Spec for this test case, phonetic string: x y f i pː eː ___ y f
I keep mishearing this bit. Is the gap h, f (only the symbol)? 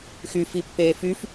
f